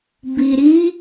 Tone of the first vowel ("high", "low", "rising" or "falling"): low